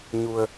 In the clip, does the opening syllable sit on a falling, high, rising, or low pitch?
low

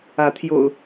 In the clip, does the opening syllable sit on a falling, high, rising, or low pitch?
rising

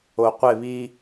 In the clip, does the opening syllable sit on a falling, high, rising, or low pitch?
low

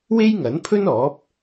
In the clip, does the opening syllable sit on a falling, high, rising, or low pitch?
high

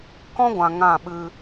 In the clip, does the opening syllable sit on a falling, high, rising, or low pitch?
high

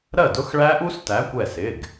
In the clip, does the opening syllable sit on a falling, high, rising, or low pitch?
falling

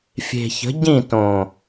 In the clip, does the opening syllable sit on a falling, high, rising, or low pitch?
low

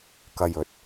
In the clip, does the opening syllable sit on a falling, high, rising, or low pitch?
low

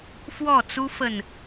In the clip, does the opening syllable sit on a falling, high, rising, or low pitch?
falling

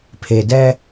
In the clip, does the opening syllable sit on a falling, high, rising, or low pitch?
low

